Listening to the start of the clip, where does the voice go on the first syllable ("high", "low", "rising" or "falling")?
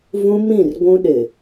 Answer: high